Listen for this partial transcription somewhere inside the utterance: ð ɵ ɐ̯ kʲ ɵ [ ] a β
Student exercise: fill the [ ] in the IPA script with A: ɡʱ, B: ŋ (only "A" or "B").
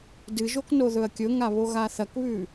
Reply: B